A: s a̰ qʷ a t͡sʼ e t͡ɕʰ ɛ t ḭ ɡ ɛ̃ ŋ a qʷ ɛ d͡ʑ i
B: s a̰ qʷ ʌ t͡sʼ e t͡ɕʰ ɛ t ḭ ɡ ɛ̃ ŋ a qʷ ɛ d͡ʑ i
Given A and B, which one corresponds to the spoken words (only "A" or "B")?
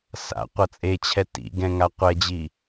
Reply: B